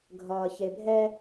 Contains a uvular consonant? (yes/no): no